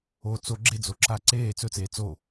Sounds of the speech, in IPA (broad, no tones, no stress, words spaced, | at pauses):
o t͡so ɡ͡ǁed͡zoǁʰaː ǀeː t͡sɵt͡seː t͡so